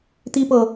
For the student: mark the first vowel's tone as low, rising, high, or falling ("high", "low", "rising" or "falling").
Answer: high